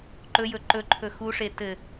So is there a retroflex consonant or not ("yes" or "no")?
yes